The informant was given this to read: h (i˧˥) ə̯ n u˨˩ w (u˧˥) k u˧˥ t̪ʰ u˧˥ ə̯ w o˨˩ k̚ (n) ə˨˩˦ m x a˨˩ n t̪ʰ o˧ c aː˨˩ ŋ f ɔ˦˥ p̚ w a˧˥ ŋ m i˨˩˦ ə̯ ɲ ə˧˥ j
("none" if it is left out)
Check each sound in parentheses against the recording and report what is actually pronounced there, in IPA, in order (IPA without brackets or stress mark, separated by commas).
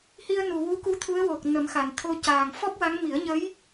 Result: i˧, u˧˥, n